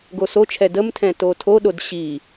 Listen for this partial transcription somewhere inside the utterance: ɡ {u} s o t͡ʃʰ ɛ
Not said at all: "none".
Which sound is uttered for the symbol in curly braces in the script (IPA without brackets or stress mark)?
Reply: o